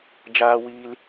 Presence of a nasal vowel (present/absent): absent